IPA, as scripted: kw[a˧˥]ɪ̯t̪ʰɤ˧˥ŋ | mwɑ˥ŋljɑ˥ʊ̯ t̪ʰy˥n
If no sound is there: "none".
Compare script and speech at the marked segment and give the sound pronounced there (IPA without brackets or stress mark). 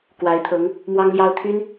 a˧˥